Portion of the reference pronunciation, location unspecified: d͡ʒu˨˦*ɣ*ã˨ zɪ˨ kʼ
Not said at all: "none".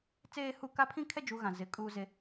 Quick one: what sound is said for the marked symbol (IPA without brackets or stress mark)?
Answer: ɣ